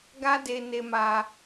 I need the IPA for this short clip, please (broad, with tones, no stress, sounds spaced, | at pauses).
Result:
ɡ a˦ d e˧ n e˧ m a˧